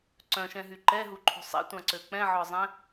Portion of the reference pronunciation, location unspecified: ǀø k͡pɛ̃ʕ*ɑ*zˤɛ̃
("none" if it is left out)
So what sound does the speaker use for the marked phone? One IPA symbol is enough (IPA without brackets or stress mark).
ɔ